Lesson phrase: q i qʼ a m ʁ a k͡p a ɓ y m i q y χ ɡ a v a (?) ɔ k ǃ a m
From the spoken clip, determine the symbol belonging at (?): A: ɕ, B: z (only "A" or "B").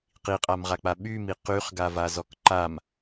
B